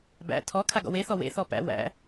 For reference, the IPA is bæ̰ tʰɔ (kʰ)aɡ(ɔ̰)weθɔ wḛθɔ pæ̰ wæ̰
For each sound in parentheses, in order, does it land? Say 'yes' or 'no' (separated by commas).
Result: yes, yes